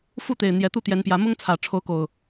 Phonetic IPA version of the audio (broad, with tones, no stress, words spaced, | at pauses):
fu˥˨t̪e˨˩ɪ̯ n̪jɛ˨˦t̪u˥˨t̪jɛ˨˦npjä˨˦ mʊ˦ŋt͡sʰä˨˩ ʈ͡ʂʰo˨˦ʊ̯ko˨˩ʊ̯